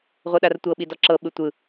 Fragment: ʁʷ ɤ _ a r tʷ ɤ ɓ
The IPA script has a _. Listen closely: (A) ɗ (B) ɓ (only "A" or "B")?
A